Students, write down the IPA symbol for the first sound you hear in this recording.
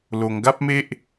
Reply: l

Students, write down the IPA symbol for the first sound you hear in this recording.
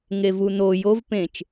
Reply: ŋ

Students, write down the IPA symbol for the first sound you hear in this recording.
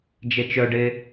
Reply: d͡ʒ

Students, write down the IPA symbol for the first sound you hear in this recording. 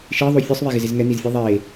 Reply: ʃ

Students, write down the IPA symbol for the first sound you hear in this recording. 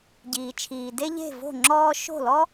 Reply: ɟ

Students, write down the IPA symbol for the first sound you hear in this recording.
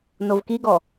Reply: n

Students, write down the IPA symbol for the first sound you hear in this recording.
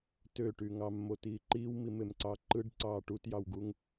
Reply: t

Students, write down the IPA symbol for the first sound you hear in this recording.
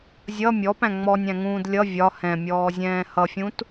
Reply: zʲ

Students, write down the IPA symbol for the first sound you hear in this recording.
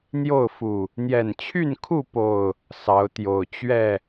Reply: n̪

